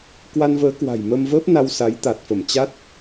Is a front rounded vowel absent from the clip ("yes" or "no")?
yes